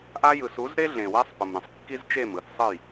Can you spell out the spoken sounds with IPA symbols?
ʔ a˦ j ɯ˨ s u˨˦ z ɾ e˦ ɮ ẽ˨ w ɛ˦ sˤ p ɯ˨ m ɾ ẽ˨ sˤ kː i˦ z t͡ʃ e˦˨ m ɯ˦˨ θ sˤ ɯ˦˨ j

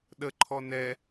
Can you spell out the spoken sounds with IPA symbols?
ɗ ə ǃʰ ɔ n ɛ

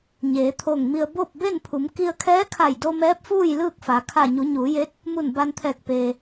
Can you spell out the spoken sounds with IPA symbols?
ɲ eː˩˧ t̪ʰ o˧˩ ŋ m i˧ ə̯ b o˥˨ p̚ b e˥˨ n pʰ u˩˧ m k i˧ ə̯ kʰ ɛː˧˥ kʰ a˧˩ j d o˧ m ɛː˧˥ p̚ f uː˥˨ j l ɯː˥˨ k̚ f a˩˧ kʰ a˧˩ ɲ u˩˧ ɲ uː˩˧ j e˧˥ t̚ | m u˧˩ n b a˧ n t̪ʰ ɛː˧˩ k̚ p eː˩

